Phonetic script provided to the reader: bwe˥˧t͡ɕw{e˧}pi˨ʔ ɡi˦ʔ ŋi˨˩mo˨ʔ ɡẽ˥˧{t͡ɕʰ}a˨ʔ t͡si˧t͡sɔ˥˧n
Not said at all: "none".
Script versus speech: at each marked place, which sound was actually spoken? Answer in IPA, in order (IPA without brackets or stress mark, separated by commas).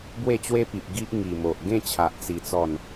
e˦, t͡ɕʰ